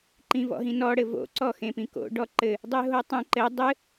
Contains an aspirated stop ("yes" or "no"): no